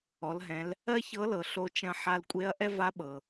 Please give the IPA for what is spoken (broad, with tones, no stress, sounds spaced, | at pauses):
ɔ˩˧ l ɦ ɛ̃˩˧ l | ɜ˥ ç ɤ˧˥ l ɤ˩ ɬ o˧ t͡ʃ ɐ̃˧ ħ a˧ l kʷʼ e˧˥ ɐ̯ ʔ ɛ˥ v a˧˥ ɓ ɤ˩